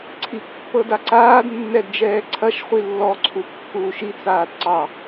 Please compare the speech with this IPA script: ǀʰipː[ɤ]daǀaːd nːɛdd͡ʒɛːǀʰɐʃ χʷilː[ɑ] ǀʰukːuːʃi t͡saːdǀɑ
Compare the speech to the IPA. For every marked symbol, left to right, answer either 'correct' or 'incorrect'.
correct, incorrect: ɔ

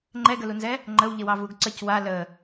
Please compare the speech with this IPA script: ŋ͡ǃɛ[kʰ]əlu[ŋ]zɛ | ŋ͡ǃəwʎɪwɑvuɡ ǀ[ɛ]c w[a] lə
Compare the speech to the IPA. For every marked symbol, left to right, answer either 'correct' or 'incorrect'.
incorrect: ɡ, incorrect: n, incorrect: ə, correct

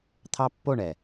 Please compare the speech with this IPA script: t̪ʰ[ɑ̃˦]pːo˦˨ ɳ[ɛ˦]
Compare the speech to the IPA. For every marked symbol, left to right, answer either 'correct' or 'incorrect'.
incorrect: ɑ˦, incorrect: ɛ˨

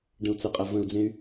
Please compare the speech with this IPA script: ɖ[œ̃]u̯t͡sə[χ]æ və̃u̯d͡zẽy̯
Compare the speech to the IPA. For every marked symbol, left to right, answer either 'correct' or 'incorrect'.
incorrect: ə̃, incorrect: qʼ

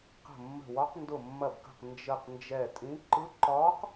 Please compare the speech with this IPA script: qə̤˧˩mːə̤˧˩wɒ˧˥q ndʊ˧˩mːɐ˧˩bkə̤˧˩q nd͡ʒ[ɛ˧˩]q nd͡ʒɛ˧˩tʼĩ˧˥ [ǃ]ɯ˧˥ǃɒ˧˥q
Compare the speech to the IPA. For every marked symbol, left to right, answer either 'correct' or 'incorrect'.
incorrect: ə˧˩, correct

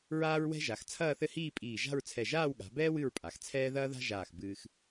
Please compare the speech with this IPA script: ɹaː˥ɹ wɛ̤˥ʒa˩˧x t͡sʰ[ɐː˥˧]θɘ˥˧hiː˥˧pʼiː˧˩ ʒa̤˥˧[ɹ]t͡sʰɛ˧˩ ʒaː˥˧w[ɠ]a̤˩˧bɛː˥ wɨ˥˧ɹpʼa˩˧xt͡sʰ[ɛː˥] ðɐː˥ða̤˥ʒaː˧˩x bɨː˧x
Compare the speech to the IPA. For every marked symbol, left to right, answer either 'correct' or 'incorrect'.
correct, correct, correct, correct

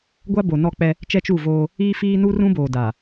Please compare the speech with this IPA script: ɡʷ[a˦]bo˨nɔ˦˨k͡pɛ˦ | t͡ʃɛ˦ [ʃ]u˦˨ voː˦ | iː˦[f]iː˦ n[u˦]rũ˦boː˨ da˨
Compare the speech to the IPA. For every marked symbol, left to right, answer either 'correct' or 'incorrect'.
correct, incorrect: t͡ʃ, correct, correct

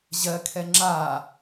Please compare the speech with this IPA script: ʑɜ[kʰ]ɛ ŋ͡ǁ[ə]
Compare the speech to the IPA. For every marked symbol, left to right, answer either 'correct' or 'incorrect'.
correct, incorrect: a

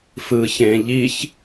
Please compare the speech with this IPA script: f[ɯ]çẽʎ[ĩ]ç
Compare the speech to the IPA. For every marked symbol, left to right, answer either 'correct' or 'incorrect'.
correct, incorrect: i

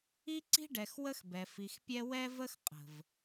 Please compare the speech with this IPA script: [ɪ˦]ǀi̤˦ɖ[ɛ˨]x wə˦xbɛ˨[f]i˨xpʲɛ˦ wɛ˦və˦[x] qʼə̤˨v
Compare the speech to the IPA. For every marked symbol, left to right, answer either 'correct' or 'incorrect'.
incorrect: i˦, correct, correct, correct

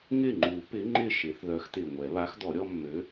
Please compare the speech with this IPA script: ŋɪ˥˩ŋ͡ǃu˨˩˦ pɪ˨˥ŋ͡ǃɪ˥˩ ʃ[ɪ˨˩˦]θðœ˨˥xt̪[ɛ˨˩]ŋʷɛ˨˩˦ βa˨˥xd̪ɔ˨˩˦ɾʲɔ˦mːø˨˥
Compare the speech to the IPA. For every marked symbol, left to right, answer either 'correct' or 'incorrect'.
correct, incorrect: ɪ˨˩

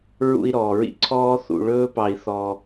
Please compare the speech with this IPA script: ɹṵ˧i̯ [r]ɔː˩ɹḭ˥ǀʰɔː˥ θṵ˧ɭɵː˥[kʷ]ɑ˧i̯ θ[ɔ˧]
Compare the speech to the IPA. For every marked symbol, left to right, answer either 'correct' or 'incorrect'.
incorrect: ɾ, incorrect: p, correct

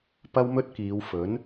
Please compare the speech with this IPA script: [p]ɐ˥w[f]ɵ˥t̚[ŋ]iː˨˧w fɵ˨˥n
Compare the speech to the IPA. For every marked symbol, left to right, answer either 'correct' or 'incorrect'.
correct, incorrect: m, incorrect: k

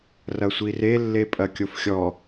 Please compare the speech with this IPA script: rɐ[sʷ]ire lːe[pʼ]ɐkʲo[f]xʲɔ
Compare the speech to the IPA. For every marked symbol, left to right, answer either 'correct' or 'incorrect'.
correct, correct, correct

